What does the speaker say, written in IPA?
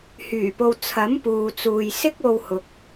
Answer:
h yː˨˩ p o˨ w t͡sʰ ɐ˨˥ m p uː˨ t͡s uː˨ j s ɪ˥ k̚ o˧ w h ʊ˨ k̚

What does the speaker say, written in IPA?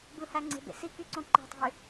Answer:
b ɯ h æ ŋ͡ǀ e̤ b ḛ s i k y ǀ õ ǃ æ̤ tˤ e̤ y̯

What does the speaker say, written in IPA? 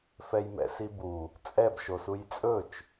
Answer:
f ɛ j m ɛ̰ s i b u | t͡sʼ ɛ b ʃ o s u j t͡sʼ ɵ t͡ʃ

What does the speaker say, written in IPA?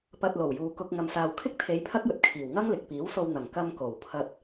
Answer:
p ɐ˧ t̚ l o˨˩ w j uː˨ k ʊ˧ k̚ ŋ ɐ˨ m s aː˨ w kʰ ɪ˥ k̚ t̪ʰ e˨˧ j pʰ ɐ˥ k̚ j ɵ˨ t̚ kʰ iː˨˩ w ŋ ɐ˥ ŋ l ɪ˨ k̚ p iː˨˥ w s o˧ w n̪ ɐ˨˩ ŋ k ɐ˧ m k o˨˩ w pʰ ɐ˧ t̚

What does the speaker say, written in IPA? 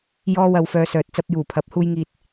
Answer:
j ɔː˥ w ɐ˧ w f œː˧ s œː˨ t̚ t͡s ɐ˧ p̚ j uː˨˩ pʰ ɐ˨˥ p̚ h uː˧ j ŋ iː˧ t̚

